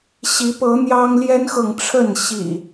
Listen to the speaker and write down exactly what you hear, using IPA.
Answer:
ɕ i˨˦ p ɤ˨˦ n̪ j ɑ˦ ŋ l j ɛ˦ n x ɤ˨ ŋ ʈ͡ʂʰ ə˥˨ n ɕ ḭ˨˩

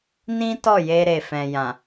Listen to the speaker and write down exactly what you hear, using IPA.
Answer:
n ĩ˦ t ɔ˦˨ j e˧ ɾ e˨ f ɛ̃˨ j ã˨

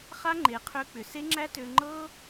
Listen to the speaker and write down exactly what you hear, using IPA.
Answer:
χ a˦ ŋ͡ǃ e˨˦ qʰ ø˧ k͡p ʏ˨ s e˦ ŋ͡ǁ æ˦ t ø˧ ŋ͡ǃ ɤ˦

